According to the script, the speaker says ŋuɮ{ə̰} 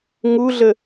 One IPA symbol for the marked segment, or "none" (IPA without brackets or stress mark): ə